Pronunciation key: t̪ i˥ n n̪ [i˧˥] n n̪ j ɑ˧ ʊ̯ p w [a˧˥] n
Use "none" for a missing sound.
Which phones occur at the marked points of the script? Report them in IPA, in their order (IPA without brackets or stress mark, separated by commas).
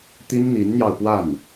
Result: i˧˥, a˥˩